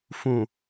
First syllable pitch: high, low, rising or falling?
low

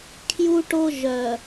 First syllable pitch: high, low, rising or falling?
high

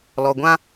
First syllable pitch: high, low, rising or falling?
low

